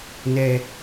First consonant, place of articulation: alveolar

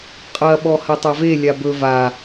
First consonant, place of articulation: uvular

